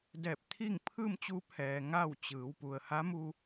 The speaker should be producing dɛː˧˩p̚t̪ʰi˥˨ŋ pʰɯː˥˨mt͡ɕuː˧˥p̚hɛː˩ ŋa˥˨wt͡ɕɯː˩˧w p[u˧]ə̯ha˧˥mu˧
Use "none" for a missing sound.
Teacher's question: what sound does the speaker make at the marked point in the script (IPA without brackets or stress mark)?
u˩